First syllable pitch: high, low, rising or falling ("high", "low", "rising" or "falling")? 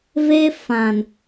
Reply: high